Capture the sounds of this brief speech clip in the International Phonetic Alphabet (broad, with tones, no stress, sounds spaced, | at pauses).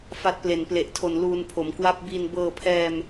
f a˦˥ t̚ p l e˨˩ n p l e˨˩ ʔ tʰ o˨˩ n l uː˧ n pʰ o˩˦ m k w a˥˩ p̚ b i˧ n b ɤː˧ pʰ ɛː˧ m